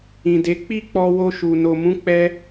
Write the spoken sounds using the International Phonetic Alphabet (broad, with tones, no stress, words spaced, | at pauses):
ĩ˨de˨˦ k͡pi˦k͡pɔ˧ wo˧ʃu˨ no˨mũ˨˦k͡pɛ˧